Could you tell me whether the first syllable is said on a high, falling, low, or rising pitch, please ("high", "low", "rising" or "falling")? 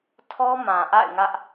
high